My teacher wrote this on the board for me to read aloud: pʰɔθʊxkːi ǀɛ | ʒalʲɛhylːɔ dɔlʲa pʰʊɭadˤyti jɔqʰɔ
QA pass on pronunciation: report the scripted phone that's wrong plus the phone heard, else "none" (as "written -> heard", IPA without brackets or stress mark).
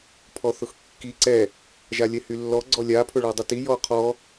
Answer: d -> ɡ͡ǀ